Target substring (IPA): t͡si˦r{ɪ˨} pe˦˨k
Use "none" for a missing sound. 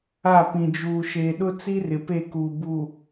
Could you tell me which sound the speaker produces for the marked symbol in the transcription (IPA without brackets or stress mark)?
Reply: ɪ˨